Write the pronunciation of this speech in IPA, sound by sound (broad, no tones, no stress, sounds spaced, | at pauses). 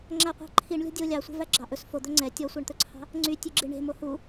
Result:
ŋ͡ǁ æ qʷ æ̤ ǃʰ i ɳ lʲ ɔ̤ dʲ o lʲ ɑ sʷ e̤ v æ ɡ͡ǁ ɑ ʔ ɵ s f o d̪ ɵ ŋ͡ǀ ɛ tʲ ɔ sʷ æ ɳ t̪ ɵ ǀʰ ɑ̤ | ŋ͡ǀ y tʲ ʉ ɡ͡ǁ i ɳ e̤ m o h u